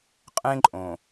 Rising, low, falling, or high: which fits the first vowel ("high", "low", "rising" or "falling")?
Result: high